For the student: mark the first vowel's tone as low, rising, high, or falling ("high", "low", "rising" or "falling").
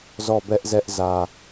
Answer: falling